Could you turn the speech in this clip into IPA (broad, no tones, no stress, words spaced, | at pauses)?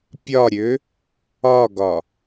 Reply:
pʲɒɾʲø | ɒɡɒ